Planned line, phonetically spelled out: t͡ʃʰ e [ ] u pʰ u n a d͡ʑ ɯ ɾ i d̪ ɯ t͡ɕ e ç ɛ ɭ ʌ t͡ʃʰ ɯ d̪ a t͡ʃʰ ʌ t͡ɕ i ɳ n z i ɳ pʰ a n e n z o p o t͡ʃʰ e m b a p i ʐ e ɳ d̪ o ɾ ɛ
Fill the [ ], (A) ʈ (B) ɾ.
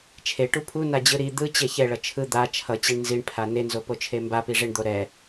A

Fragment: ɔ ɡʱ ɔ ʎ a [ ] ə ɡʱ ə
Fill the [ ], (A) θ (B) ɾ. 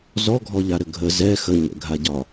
B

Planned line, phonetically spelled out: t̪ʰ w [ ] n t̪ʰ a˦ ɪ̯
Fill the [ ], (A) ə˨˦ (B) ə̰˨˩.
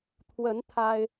A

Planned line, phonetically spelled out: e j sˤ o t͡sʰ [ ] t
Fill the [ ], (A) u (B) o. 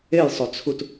A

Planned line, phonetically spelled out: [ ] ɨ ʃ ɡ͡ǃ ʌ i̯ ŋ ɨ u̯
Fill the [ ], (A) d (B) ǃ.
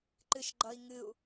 B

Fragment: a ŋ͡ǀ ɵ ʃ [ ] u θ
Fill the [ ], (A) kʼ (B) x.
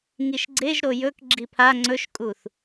A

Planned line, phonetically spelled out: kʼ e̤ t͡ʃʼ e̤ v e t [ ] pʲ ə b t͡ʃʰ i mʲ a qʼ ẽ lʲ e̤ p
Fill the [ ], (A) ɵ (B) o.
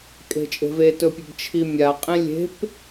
A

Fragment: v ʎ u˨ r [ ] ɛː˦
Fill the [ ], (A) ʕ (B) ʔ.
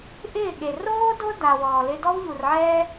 A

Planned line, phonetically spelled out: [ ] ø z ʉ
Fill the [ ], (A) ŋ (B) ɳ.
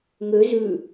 A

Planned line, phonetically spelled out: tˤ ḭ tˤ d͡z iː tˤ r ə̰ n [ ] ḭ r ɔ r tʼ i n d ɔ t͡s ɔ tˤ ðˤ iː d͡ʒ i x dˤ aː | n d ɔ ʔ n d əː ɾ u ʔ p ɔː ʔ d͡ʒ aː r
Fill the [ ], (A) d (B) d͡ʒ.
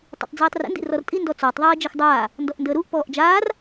A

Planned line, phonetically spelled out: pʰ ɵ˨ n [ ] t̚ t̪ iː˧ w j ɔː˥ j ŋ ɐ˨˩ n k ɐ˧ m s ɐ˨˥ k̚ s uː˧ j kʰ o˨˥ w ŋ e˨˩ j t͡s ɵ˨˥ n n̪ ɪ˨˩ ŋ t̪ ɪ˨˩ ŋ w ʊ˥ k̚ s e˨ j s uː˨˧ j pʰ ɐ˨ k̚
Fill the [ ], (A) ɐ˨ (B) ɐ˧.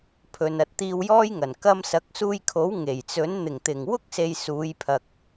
B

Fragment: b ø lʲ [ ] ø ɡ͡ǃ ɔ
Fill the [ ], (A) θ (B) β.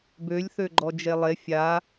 A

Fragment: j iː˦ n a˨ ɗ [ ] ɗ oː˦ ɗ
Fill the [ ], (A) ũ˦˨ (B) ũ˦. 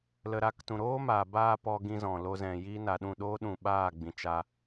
A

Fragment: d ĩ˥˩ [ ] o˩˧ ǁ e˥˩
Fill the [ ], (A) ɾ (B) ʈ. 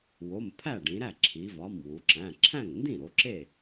A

